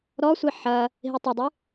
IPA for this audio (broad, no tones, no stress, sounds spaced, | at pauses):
ɾ ɔ sʷ i ħ ɐ | ɦ i tˤ ɐ dˤ ɨ